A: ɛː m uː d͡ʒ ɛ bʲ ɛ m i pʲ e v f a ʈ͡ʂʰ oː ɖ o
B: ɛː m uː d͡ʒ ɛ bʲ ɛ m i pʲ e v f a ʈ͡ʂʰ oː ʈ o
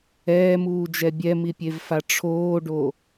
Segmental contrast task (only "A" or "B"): A